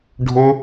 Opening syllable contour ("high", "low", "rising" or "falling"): high